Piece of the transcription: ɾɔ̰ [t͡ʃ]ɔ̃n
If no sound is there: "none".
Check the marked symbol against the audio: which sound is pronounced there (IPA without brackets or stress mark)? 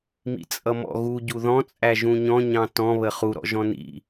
ʒ